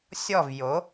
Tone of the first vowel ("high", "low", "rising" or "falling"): falling